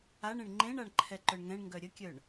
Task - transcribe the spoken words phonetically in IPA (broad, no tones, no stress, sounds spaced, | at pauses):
a ɳ ẽ ɳ ŋ͡ǃ ẽ ɳ a ɳ ǃʰ ɛ ǃ œ ɳ ŋ ɛ̃ ɳ ŋ ɡ œ ɾʲ ə kʲ œ ɳ